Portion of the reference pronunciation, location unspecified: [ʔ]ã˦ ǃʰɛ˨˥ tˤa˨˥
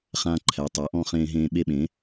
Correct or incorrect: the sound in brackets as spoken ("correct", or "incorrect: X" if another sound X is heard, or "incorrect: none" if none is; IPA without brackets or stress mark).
incorrect: χ